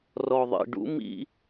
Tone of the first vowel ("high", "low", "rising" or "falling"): low